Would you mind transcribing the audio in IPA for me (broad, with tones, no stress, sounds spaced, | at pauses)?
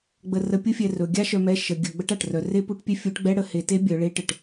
ɡ͡b ə˧ r ə˧˥ pʲ u˥ fʲ ɛ˧ r ɵ˩˧ ɡʲ a˥ ʃ œ˧ m ɛ˧˥ ʃ ə˩˧ ɡʲ ɵ˩˧ ɡ͡b ə˧˥ ʈ a˩ ʈ r œ˩˧ r e˥ p u˧˥ ʈ pʲ ɛ˥ fʲ u˧˥ ʈ ɡ͡b ɛ˥ ɽ ə˩˧ h e˩˧ t e˧˥ bʲ œ˩˧ ɭ e˧˥ ʈ ə˩ ʈ